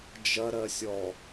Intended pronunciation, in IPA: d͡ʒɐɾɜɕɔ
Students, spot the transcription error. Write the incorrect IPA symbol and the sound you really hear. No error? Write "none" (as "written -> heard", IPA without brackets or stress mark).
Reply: ɕ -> sʲ